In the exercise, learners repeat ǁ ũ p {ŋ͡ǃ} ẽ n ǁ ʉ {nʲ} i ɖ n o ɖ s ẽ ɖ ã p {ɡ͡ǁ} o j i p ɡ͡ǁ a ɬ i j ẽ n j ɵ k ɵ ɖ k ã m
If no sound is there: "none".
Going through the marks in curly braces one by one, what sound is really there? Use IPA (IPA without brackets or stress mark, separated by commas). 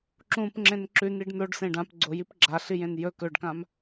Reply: ŋ͡ǁ, n, ɡ͡ǀ